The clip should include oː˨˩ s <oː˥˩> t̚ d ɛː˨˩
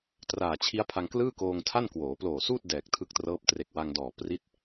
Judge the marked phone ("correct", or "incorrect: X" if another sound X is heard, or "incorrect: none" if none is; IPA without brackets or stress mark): incorrect: uː˥˩